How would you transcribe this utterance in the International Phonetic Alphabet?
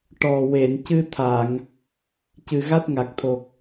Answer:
ʈ ɔ˨˩ w e˨˩˨ n c ɨ˧ t̪ʰ a˨˩˨ ŋ | c ɨ˨˩ ɣ a˦˥ t̚ ŋ a˨˩ k̚ t̪ʰ o˨˩ k̚

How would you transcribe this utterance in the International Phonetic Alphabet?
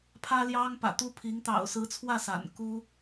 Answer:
pʰ ä˥ l j ɑ˥ ŋ p ä̰˨˩ t̪ u˥ pʰ i˧˥ ŋ t̪ ɑ̰˨˩ ʊ̯ s ɹ̩˧˥ t͡sʰ w ä˥˩ s a̰˨˩ n k u˥

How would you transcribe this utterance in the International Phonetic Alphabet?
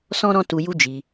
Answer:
s ɔ̃˦ ɾ ɔ̃˦ t u˧ j u˦ d͡ʒ i˧

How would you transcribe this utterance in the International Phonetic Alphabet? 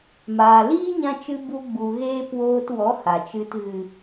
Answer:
m aː˨ l iː˦ ɲ ã˧ t͡ʃ ɨ˧ b u˧ ɡ͡b u˨ ɣ eː˦ p w oː˧ t w ɔ˨˦ h a˨ t͡ʃ ɨ˧ t ɣ ɨ˨

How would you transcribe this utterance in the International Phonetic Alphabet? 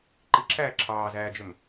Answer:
ǃ i ǁʰ æː ǁʰ ɑː z æː d͡ʒ ø m

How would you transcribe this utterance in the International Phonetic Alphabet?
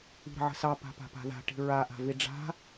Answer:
i̤ ɾ ə̤ ʕ ə̤ s ɑ p a̤ p a̤ p a̤ ð a̤ ʈ i̤ ɹ a ʔ a̤ v i ɖ͡ʐ a̤

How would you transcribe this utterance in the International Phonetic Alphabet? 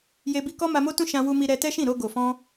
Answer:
j e˧ b i˧ k ɔ˦ m a˧ m o˦ t ũ˦ ʃ ã˧ w u˧ m i˧ ɾ ɛ˧ t ɛ˦ ʃ ĩ˦˨ ɾ o˧ ɡ o˨ f ɔ̃˧

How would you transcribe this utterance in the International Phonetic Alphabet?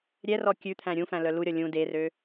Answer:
ɾʲ ɛ r ɔ kʲ ʉ t̪ʰ æ̃ ɾʲ ũ f æ̃ l œ l u ɾʲ ɔ lʲ ũ d e r ø

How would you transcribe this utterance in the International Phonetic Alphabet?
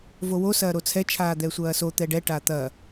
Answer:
v o w o s ɐː ɾ o t͡sʰ ɛ t͡ʃʰ aː d̪ ɛ sʷ ɐː s o t̪ ɛ ɖ ɛ ʈ a t̪ ɐ

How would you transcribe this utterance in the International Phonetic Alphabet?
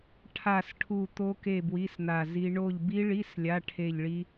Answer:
ʈʰ a˦˨ s ʈʰ u˦˨ t̪ o˦˥ k e˦˨ b w i˧˥˧ s n̪ a˦˨ z i˦˥ ɳ o˦˨ ʎ b i˦˥ ɭ i˧˥˧ s lʲ a˧˥˧ ʈʰ e˦˨ ʎ ɭ i˦˥

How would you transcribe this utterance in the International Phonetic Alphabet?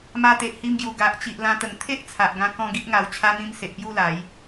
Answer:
m a˧ t̪ e˨ ʔ h i˧ m ɡ j u˨˩ ɡ a˨ ʔ t͡ɕ i˨ ʔ l ã˧ t̪ ə˨˩ ŋ t̪ʰ e˦ ʔ t͡sʰ a˨ ʔ ɡ ã˧ k ɔ̃˦ ɡ i˦ ʔ ŋ a˨˩ w t͡ɕʰ a˧ n̪ ĩ˧ m s e˨ ʔ p j u˥˧ l a˨˦ j

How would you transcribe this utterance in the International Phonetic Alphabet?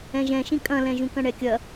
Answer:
ɛ̃ ʒ ɛ̃ ʃ ĩ kʼ ɐ̃ l ɛ̃ ʒ ũ k ɐ̃ ɳ ɛ kʲ ɐ

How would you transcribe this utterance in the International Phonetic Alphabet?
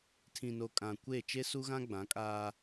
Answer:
tʰ ĩ˨ n o˨ kʼ ã˨ kʷ e˦˨ t͡ʃ e˦ s u˦ ɣ ã˦ ɡ͡b ã˨˦ kʼ aː˦

